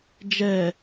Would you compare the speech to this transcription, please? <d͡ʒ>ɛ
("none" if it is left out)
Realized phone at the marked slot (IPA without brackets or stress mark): d͡ʒ